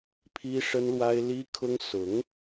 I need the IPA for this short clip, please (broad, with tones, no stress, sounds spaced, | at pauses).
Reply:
pʰ i˥ ʂ ə˥ n l w a˥ ɪ̯ l i˥ kʰ ʊ˥ ŋ s ʊ˧˥ ŋ